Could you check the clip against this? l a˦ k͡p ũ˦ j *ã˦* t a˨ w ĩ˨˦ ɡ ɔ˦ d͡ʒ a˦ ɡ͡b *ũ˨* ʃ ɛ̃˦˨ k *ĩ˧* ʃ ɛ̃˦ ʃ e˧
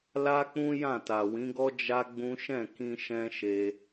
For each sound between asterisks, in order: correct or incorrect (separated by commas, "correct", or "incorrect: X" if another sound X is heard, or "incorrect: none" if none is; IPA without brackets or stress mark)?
incorrect: ã˦˨, incorrect: ũ˦, correct